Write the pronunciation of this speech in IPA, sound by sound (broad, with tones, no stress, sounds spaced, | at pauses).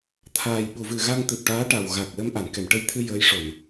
t̪ʰ aː˨˩ j ɓ u˨˩˨ v ɨ˨˩ ɣ a˧ ŋ t̪ ɨ˨˩ p̚ ʈ aː˧˥ ʈ a˨˩ w ɣ a˨˩ k̚ l ə˧ m ʔ a˨˩˨ n k ɛ˨˩˨ m ʈ ə˧ j t̪ʰ ɨ˧ j əː˧˥ j ʂ o˨˩˨ n